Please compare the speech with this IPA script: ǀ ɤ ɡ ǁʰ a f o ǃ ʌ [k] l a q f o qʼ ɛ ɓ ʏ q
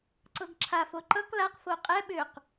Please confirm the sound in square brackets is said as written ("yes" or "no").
yes